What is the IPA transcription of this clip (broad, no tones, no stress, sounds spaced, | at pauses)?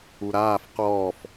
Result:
u ɾ aː f q ɔː f